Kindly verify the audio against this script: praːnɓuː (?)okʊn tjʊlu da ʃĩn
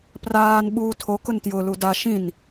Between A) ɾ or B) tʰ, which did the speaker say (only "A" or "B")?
B